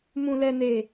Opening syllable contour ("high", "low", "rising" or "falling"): low